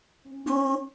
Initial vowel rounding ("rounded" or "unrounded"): rounded